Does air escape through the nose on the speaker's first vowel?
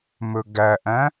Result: no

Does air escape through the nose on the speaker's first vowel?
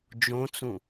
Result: yes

